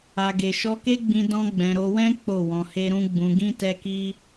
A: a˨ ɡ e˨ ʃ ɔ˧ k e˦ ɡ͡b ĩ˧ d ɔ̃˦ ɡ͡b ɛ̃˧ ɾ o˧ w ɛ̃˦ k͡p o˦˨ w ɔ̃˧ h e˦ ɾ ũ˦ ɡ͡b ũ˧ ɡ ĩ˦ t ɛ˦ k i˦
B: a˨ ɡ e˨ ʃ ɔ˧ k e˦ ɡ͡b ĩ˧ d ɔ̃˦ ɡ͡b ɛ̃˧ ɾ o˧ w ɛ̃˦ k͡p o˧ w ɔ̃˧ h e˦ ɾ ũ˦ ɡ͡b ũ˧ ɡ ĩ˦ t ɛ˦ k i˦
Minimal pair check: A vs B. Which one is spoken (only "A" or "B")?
A